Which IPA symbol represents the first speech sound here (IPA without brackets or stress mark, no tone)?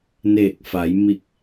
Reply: n